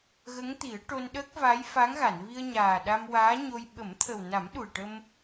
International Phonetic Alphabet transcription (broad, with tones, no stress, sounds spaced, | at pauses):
ɣ ə˧˥ ŋ t̪ i˨˩˦ ə̯ ʈ o˧ n ɗ əː˦˥ k̚ v a˧˥ j f a˧˥ ŋ ɣ a˨˩˨ n v i˧ ə̯ ɲ aː˨˩ ɗ a˧ m w aː˧˥ ɲ o˧ j ɓ ə˨˩˦ m t̪ʰ ə˨˩ w n a˨˩˦ m ɗ u˨˩ ə̯ ʈ ə˧ m